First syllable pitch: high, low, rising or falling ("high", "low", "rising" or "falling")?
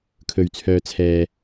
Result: low